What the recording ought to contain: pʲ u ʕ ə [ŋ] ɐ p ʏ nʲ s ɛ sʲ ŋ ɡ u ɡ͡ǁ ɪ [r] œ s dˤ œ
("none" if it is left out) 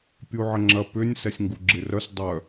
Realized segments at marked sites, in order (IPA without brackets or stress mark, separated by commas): ŋ͡ǁ, r